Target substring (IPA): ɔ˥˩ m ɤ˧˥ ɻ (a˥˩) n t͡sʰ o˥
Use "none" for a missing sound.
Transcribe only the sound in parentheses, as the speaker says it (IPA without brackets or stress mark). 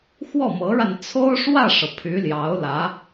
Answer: a˧